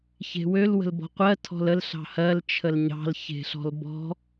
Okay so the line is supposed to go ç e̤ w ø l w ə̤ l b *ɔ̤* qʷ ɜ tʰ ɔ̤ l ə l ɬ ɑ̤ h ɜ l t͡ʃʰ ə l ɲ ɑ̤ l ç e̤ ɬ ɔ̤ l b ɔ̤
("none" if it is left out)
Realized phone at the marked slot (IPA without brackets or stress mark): ɔ̤